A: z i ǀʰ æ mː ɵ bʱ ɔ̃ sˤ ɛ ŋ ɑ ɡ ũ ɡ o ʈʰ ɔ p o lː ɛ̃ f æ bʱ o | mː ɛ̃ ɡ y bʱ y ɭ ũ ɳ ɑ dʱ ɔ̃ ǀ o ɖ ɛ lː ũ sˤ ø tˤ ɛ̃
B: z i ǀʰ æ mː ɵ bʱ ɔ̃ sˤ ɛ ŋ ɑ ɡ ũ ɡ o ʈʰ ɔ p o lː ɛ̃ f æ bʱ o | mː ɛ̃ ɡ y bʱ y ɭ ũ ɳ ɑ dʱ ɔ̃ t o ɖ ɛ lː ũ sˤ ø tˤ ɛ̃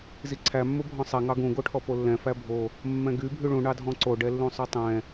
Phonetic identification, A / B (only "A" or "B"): A